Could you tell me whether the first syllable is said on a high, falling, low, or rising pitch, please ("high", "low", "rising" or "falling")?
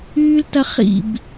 high